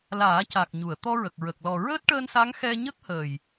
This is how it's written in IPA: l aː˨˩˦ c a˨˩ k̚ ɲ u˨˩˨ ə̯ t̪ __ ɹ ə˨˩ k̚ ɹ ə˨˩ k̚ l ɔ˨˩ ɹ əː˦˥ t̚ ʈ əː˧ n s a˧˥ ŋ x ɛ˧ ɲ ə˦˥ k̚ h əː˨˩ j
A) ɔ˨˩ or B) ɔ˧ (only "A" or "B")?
B